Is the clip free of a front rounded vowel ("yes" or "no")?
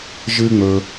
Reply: yes